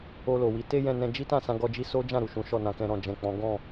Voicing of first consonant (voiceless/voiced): voiced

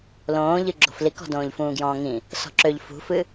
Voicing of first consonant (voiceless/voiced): voiced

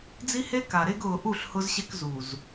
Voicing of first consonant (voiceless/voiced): voiced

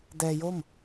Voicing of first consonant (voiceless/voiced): voiced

